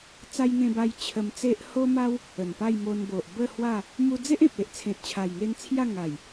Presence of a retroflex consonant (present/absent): absent